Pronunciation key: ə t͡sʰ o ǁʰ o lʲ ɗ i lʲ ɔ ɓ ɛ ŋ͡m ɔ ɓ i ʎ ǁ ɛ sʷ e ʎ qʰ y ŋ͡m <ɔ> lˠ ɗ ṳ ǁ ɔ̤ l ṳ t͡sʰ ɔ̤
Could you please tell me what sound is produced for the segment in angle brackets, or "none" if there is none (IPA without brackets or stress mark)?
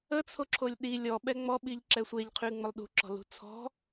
ə